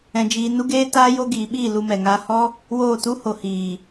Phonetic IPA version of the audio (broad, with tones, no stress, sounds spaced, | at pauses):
ɛ̃˧ d͡ʒ iː˧ n u˦ ɡ eː˦ t aː˦ j o˦ ɡ iː˨˦ ɓ iː˦˨ l u˧ m ɛ˨ ŋ aː˧ h ɔ˦ | w oː˦˨ t u˦ h o˨ h iː˨